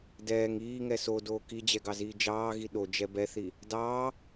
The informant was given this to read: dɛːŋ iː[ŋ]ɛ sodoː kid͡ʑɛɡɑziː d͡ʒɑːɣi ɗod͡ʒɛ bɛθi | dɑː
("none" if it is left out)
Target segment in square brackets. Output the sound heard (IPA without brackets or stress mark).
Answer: ŋ